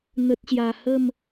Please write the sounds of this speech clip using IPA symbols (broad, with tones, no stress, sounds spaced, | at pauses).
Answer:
n̪ ə˨ t̚ ɕ j a˨˩ h ə˥˧ m